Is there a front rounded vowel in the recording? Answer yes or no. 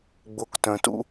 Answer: yes